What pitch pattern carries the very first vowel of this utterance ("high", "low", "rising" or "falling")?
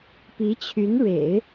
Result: rising